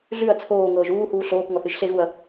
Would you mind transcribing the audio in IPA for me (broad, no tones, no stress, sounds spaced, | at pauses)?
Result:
ɮ ʉ ɐ̯ t͡sʰ oː ŋ ɤː ʒ uː h uː ɬ oː k ŋ ɔ θ ɨ ʒ ɬ e ɣ u ɐ̯